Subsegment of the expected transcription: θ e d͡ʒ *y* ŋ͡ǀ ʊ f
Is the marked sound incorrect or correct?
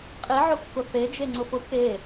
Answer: incorrect